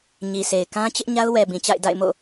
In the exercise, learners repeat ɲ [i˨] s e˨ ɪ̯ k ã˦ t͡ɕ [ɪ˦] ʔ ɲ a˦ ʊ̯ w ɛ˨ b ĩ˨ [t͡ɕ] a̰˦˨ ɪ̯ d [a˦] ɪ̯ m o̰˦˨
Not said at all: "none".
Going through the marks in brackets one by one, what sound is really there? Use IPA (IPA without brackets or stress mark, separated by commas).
i˨, ɪ˦, t͡ɕ, a̰˦˨